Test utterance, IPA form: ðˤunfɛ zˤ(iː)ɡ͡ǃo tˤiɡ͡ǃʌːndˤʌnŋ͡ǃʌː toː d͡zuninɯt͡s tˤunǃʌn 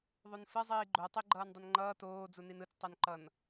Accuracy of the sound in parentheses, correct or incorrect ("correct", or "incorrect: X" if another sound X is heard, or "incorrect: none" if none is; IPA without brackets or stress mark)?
correct